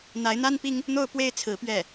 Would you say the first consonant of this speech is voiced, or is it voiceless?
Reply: voiced